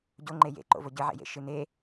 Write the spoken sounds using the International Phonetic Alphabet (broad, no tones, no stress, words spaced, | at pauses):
ɟoŋ͡ǃe jḛǃo̰ voɟɨʕḛjḛ ʃɨne